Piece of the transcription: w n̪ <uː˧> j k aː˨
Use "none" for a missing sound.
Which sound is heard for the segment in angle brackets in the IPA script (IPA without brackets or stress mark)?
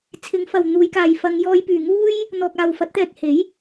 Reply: uː˨˧